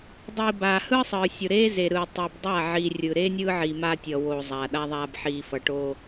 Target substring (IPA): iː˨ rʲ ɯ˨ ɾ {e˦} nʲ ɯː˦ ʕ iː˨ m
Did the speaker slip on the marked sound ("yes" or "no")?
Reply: yes